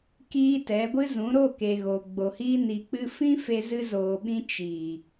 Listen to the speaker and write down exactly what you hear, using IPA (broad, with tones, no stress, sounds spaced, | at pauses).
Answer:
k iː˧ t ɛ˨˦ ɡʷ ɨ˦ z ũ˨˦ ɾ o˦˨ k e˨ ɣ o˨ ɡ͡b o˨ h iː˧ n i˨ k͡p ɨ˧ f ĩ˦ f e˧ z ɨ˧ z oː˨ ɓ ĩ˧ t͡ʃ i˨